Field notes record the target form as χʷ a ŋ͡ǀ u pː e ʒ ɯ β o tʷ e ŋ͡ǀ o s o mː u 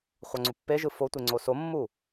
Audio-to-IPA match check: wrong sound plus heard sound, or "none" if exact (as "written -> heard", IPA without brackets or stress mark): β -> f